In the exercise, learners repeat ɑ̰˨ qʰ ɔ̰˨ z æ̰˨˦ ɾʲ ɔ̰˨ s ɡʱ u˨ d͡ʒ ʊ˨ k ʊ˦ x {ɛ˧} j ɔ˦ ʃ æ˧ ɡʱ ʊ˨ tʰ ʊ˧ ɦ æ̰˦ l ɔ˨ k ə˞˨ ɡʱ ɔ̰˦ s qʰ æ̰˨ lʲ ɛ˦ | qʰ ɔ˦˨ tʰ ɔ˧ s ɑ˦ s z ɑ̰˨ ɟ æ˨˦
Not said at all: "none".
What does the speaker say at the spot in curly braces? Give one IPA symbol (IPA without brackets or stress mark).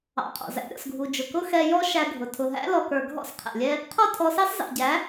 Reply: ɛ˧